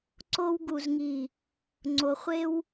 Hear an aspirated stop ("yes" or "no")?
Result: no